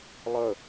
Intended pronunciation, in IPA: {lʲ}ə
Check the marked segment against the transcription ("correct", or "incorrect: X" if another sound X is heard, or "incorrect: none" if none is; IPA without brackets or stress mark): incorrect: lˠ